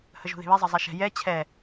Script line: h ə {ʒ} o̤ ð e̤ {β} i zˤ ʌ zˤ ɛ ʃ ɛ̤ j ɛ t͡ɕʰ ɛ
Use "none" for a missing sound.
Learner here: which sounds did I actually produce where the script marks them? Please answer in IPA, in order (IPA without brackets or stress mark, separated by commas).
ʒ, β